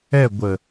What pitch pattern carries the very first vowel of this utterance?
falling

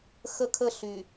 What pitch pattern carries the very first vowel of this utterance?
high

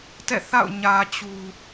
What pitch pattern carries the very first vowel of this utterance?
falling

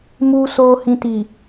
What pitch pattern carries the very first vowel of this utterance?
low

